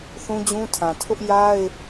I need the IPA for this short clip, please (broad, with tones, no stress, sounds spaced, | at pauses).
θ ũ˦ d͡ʑ ũ˦ tʰ ã˨ tʰ ʊ˦ ʔ j a˦ ɪ̯